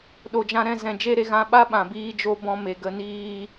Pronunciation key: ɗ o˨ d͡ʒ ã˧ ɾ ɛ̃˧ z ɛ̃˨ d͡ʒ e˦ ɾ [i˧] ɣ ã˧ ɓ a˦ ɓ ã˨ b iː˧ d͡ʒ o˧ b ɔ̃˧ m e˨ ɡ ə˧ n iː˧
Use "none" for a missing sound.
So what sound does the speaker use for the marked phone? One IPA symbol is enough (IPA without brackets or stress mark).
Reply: e˧